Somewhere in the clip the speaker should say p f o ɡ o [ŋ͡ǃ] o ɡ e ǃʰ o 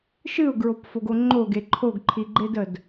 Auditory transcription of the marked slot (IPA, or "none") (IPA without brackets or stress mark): ŋ͡ǃ